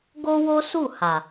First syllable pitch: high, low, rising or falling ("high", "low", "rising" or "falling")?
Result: high